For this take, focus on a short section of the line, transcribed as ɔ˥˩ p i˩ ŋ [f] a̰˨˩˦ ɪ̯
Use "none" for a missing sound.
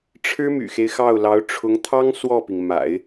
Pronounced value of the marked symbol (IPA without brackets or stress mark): m